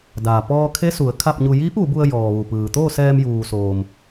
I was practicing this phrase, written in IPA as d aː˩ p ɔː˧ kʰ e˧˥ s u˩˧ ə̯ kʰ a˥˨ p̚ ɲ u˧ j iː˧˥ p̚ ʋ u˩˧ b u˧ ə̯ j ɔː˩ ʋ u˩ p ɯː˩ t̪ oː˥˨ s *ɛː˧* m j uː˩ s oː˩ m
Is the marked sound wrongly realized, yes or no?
no